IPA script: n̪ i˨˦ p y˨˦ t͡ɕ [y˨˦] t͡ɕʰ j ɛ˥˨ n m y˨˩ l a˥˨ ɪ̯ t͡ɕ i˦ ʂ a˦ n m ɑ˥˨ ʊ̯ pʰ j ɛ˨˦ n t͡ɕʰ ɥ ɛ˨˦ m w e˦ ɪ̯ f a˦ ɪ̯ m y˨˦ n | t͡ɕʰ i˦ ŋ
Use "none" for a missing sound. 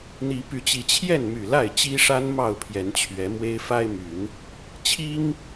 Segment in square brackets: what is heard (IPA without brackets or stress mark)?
i˨˦